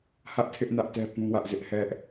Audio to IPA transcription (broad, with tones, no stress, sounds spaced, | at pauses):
h ä˦ ʔ tʰ ɪ˦ ʔ n ä˦ ʔ t ɛ˦ p ũ˦ w ä˦ ʔ z ɪ˦ ʔ h ɛ˦ ʔ